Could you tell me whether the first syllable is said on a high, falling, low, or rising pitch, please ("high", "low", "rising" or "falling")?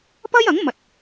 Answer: high